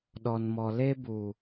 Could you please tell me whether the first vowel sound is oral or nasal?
oral